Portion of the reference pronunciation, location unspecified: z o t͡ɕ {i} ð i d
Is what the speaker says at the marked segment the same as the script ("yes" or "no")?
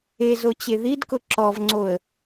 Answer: no